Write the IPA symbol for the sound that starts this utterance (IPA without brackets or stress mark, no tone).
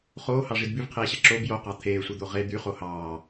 χ